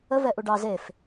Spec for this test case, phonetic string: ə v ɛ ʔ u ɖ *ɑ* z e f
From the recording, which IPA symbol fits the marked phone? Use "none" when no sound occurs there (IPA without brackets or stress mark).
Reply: ɑ